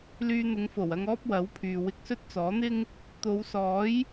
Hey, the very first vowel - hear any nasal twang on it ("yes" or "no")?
no